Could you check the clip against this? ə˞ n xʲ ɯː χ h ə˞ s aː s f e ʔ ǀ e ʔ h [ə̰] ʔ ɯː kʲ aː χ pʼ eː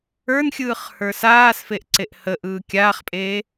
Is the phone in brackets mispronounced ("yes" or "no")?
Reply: yes